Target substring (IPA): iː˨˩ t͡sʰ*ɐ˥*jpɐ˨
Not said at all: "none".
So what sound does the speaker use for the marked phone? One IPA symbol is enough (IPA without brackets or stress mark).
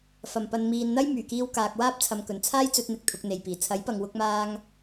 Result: ɐ˨˥